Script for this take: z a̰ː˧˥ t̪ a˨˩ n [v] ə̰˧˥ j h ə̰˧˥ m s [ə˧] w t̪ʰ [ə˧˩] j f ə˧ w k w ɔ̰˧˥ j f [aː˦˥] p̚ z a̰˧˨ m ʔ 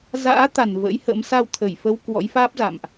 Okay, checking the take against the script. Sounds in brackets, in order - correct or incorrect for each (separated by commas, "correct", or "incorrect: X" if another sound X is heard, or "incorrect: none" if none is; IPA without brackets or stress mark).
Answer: correct, incorrect: a˧, correct, correct